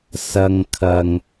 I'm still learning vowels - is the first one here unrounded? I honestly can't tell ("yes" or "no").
yes